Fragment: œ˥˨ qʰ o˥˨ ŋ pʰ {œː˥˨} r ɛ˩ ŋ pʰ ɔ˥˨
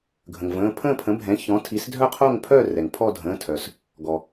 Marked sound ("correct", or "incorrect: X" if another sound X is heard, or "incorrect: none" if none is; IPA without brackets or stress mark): correct